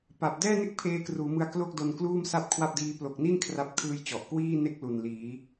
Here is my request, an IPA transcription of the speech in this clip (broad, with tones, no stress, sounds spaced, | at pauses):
p a˨˩ p̚ d ɛː˥˩ n e˥˩ k̚ pʰ eː˦˥ k r uː˩˦ m ɯ˧ a̯ k l o˥˩ k̚ d o˧ n k l uː˥˩ m s a˥˩ p̚ kʰ w a˥˩ p̚ d iː˦˥ p l o˨˩ k̚ n i˥˩ n kʰ r a˥˩ p̚ kʰ ɯː˥˩ j t͡ɕ ɔ˨˩ ʔ k w iː˥˩ n e˥˩ k̚ l u˨˩ n l iː˩˦